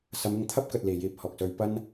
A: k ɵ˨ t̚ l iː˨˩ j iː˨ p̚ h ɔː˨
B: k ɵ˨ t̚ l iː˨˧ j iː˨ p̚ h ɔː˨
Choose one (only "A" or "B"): A